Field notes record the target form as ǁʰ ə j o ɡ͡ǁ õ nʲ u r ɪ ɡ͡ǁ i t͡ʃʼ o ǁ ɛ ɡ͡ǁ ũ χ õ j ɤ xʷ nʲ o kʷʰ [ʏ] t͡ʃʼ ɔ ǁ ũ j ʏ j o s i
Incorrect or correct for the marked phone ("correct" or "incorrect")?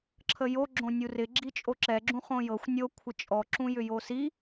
incorrect